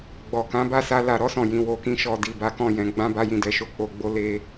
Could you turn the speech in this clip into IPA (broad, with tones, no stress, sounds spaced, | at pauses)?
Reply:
ɡ͡b ɔ˨ k ã˨˦ b a˦˨ s a˧ l a˨ ɾ ɔ˧ s ɔ̃˨ j ĩ˨ w o˨˦ k ĩ˦ ʃ ɔ˧ d i˨ b a˨˦ k ɔ̃˦˨ j ɛ̃˨˦ ɡ͡b ã˦ b a˦ j ĩ˦˨ d ɛ˨˦ ʃ o˦˨ k͡p o˧ ɡ͡b o˦ l e˦